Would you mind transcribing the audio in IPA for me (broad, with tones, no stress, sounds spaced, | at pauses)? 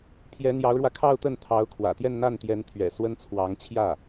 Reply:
pʰ j ɛ˧˥ n̪ j ɑ˧˥ ʊ̯ ɻ w ä˧ kʰ ɑ˥˧ ʊ̯ t̪ ə˥˩ n t̪ʰ ɑ˧˥ ʊ̯ kʰ w ä̰˨˩ t̪ j ɛ˥˧ n n̪ a˥˩ n t̪ j ɛ˧˥ n t̪ʰ ɥ ɛ̰˨˩ s w ə˥ n t͡sʰ w ɑ˧˥ ŋ t͡ɕʰ j ä˥˩